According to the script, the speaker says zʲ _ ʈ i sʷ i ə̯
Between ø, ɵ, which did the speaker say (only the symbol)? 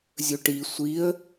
ɵ